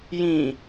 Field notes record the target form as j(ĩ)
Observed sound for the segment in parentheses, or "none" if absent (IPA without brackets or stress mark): ĩ